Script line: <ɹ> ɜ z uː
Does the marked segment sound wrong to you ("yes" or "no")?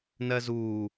yes